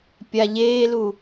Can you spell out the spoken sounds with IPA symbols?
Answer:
pʲ a ʎ eː l u

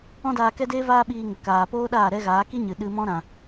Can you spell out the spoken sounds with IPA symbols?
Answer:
ɔ̃˦ d aː˧ k ɛ˦ d eː˦ v aː˦ ɓ iː˧ ŋ ə˨ k aː˨ p oː˦ ɗ aː˦˨ ɾ ɛ˦ ɣ aː˨˦ k i˦ ɲ ɨ˨ ɗ ɨ˧ m ɔ̃˦ ɾ ã˨

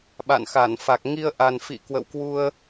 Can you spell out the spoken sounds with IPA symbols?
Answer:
ɓ a̰˧˨ n x a˧˩ n f a˨˩ k̚ ŋ i˧ ə̯ ʔ a˨˩ n f ḭ˧˨ k w ə̰˧˨ w k w u˧ ə̯

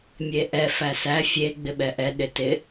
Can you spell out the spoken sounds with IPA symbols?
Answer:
mʲ e ʔ ɛ f æ s æ fʲ e ɡ͡b ɪ ɓ ɛ ʔ ɛ ɗ ɪ t ɪ

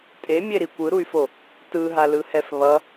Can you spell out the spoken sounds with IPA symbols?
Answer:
tʼ e mʲ e ɾ i kʷ ɯ ɾ u y̯ f o | t ɯ ɦ a l ɯ h ɛ f β ʌ

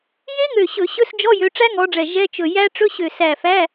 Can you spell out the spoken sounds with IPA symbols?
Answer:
j e˦˥ ŋ ø˧˩ ɕ ɵ˧˩˧ ɕ ɵ˧˥˧ s d͡ʒ ɔ˧˥˧ j ø˨˦ ʈ͡ʂ æ˦˥ ŋ ɔ˨˦ ɖ͡ʐ ɛ˧˩ ʒ ɛ˧˥˧ t͡ʃ ɵ˧˩ j æ˦˥ ʈ͡ʂ ɵ˧˥˧ ɕ ø˧˩ s æ˧˩ f æ˧˥˧

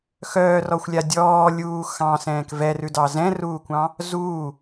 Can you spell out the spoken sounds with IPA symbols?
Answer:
x œː r ɔ xʷ lʲ a dʲ ɔː lʲ uː x ɑ̃ s ɛ̃ː k v ɛ r ʉ d ɑ z ɛ̃ r uː kʷ ɑ̃ | z uː

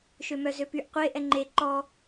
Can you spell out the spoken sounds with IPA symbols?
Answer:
ʃ ø m œ z ø p y ʔ qʷ e ʔ ɛ ŋ͡ǃ e ǃ ɔ

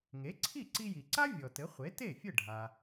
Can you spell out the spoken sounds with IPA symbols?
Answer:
ŋ e˩˥ ǀʰ i˥˩ ǀ i˧ j i˩ ǀ a˥ vʲ ɔ˩ t ɘ˩˥ χʷ e˩˥ t e˥˩ fʲ ɘ˥˩ ɖʱ a˩

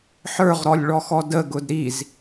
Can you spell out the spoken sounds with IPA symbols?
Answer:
ħ ə˞ ʁ ɾ ɔ lʲ ɭ ɔ x ɔ d ə ɡ ʊ d ɾ i z

